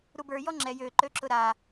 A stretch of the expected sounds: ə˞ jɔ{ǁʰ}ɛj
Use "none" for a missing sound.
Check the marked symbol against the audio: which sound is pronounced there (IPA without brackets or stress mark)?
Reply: ŋ͡ǁ